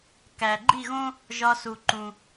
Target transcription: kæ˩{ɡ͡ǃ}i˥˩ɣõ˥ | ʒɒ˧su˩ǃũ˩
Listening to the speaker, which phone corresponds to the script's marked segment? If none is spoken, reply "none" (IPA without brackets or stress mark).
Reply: ɡ͡ǃ